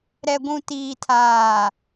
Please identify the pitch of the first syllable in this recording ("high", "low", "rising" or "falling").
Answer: low